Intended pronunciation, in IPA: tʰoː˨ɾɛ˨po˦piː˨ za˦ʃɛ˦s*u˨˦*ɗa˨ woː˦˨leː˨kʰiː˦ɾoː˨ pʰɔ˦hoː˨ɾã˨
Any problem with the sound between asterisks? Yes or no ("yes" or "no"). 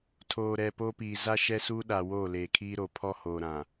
yes